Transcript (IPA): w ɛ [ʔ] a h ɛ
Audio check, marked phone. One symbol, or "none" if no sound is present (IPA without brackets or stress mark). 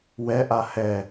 ʔ